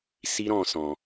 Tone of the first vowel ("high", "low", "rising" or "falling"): high